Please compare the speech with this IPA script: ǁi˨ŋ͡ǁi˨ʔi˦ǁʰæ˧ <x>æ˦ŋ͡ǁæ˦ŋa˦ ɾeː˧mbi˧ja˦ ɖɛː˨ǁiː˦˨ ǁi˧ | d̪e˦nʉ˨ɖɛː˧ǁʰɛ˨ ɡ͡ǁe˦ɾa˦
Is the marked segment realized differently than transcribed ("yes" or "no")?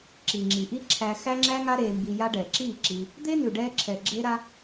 no